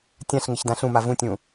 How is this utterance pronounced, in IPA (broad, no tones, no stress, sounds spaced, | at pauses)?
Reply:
tʲ ã ɬ ŋ ɪ ç d ã ɬ ũ m a v ũ tʲ ũ